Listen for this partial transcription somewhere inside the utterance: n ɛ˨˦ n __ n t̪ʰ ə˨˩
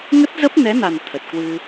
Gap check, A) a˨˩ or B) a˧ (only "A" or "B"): A